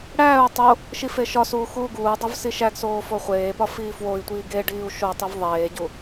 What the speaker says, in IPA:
ɽ æː u̯ tˤ o | ʃ i f e ʃ ɒ s uː x uː ɡ uː dˤ o v s i ʃ æ ɡ s oː f o χʷ eː p ɒ f iː f w o i̯ tʷ iː ɡ e ɖ iː u̯ ʃ o tˤ i v ðˤ eː ɟ u

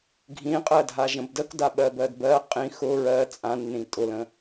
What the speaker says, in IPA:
ɡʱ ĩ qʼ ɜ dʱ a ʒ ə̃ b d ə k d a ɓ ɜ b ɜ d b ɜ qʼ ĩ x ʊ ɹ ɜ t͡sʼ ã nː ĩ tʼ ʊ l ə̃

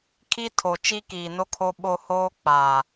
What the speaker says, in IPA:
kʰ i˦ tʰ o˨ t͡ʃ i˦ k iː˨ n o˦ kʰ o˦ ɓ o˦ h oː˦ k͡p aː˨

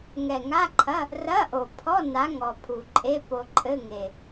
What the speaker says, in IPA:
ŋ ɛ˨˩ ŋ a˧˥˧ ǃʰ ɐ˧˥˧ | r ɐ˧˥˧ ʔ o˨˩ pʰ ɔ˧˥˧ n a˨˥ ŋ ɔ˨˩ pʰ u˨˩ ǃʼ e˧˥˧ p o˧ ǃʼ ɘ˧˥˧ ŋ e˨˩

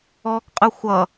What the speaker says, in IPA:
ɔː k qʼ ɯ xʷ ʌ

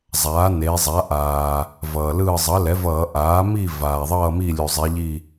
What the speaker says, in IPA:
zˤ aː˩˥ n e˩˧ zˤ a˩˥ ʔ aː˩ | v ʌː˩ l ɯː˦˨ zˤ ʌ˩˥ l ɛ˩˥ v ʌː˧˩˧ ʔ aː˩˥ m i˦˨ v aː˩ ðˤ ʌː˦˨ m i˦˨ lʲ u˩ zˤ i˩˧ ʎ i˦˨

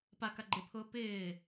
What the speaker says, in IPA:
p a k a ɡ͡ǃ ɪ pʰ ʊː p ɪː

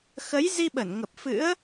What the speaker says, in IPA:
x ə˨˦ j z i˧ ɓ ə˧˩ n ŋ ə˨˩ p̚ f ɨ̰˧˥ ə̯

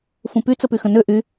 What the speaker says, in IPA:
f ũ p y t͡s ə p y x ə̃ n ø ʔ y

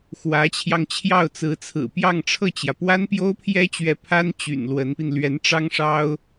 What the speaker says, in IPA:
x w ä˧˥ t͡ɕʰ j ɑ˧ ŋ t͡ɕʰ j ɑ˥˩ ʊ̯ t͡s ɹ̩˧˥ t͡sʰ ɹ̩˨˩ p j ɑ˥˧ ŋ ʈ͡ʂʰ ɤ˥˩ t͡ɕ j ä˩ p w a˥ n p j o˥ ʊ̯ pʰ j ɛ˥ t͡ɕ ɥ ɛ˧˥ pʰ a˥ n t͡ɕ y̰˨˩ n l w ə˧˥ n p i˧ n l ɥ ɛ˧˥ n ʈ͡ʂ ɑ˥ ŋ ʂ ɑ˥ ʊ̯

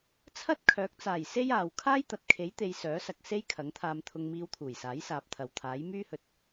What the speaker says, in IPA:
t͡sʰ ɐ˥ t̚ kʰ œː˨˥ k̚ t͡s aː˨˩ j s e˥ j aː˨ w kʰ aː˥ j t̪ ɐ˨ t̚ kʰ e˨˥ j t̪ e˨ j s œː˨˥ s ɐ˨ k̚ s e˥ j kʰ ɐ˨˥ ŋ t̪ʰ aː˧ m t̪ʰ ʊ˧ ŋ m iː˧ w t̪ʰ uː˨˩ j s aː˨˥ j s aː˨ p̚ t̪ʰ ɐ˨˩ w t̪ʰ aː˨˥ j m yː˥ h ɵ˧ t̚

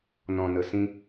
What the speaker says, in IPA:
n ɔ̃˨ n ə˨ s ĩ˧

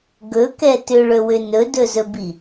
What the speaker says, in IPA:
ɡ ɵ k ɛ t ʏ ɭ ɵ w ʏ n ɵ d ɵ z ɵ b i

